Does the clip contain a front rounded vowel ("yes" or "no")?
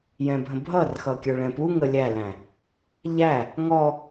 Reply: no